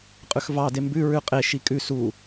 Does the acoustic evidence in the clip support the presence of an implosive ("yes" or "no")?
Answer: no